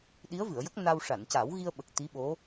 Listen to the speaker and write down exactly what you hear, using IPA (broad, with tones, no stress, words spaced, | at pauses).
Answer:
ɗi˧˥ə̯vɨ˨˩˨ə̯jə˦˥k̚ na˧w ʂa˨˩˨nca˨˩˦wɣi˧ə̯ɓə˨˩k̚ t̪i˧˥ɓo˧˥